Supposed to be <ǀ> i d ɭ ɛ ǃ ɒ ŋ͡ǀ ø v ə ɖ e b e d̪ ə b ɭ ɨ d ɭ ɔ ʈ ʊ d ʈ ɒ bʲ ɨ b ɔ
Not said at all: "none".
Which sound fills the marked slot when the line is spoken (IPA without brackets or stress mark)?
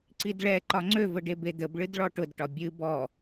ǀ